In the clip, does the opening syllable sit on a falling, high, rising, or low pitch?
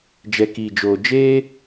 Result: low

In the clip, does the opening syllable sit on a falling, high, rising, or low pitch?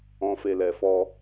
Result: low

